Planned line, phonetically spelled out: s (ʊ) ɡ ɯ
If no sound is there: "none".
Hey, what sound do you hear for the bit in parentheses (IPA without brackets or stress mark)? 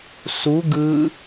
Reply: u